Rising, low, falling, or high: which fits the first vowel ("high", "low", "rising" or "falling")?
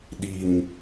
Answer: low